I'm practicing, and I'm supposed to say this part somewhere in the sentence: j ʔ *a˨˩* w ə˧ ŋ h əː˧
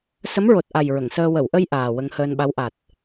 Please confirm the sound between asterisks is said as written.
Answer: no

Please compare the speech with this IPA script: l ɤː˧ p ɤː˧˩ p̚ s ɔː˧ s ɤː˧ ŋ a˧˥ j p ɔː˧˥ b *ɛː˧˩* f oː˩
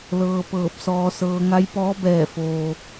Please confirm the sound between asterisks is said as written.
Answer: yes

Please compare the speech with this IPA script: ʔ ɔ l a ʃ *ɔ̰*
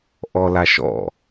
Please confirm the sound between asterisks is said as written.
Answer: yes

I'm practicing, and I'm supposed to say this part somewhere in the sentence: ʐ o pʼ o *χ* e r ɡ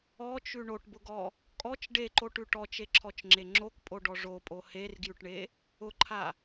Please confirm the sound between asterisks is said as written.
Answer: no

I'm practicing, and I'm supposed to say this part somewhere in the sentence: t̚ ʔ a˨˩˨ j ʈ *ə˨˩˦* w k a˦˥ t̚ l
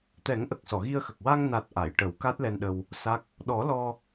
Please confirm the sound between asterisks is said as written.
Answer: yes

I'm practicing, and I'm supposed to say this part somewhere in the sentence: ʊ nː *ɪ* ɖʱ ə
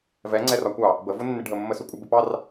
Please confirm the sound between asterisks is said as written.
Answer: yes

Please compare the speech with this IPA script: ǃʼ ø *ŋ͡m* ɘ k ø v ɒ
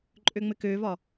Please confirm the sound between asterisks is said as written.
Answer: yes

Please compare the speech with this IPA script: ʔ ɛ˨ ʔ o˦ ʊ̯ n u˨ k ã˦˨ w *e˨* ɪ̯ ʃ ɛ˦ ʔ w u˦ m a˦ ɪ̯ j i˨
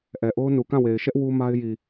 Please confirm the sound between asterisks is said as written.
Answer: yes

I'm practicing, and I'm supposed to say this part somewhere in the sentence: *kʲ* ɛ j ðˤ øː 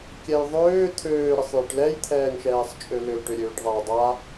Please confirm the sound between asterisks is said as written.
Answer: yes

